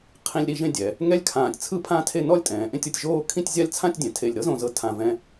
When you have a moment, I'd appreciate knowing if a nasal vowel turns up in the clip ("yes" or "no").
yes